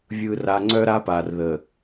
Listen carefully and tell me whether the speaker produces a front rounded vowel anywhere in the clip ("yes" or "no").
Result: yes